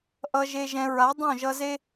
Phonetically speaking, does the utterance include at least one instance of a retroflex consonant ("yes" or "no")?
no